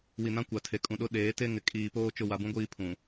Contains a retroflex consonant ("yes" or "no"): no